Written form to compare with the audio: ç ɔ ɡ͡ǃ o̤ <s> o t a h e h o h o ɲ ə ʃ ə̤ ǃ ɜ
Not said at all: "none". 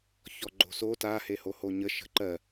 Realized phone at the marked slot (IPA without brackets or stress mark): s